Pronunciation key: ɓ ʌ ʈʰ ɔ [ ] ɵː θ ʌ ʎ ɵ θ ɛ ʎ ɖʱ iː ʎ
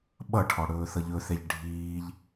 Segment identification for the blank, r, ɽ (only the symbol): ɽ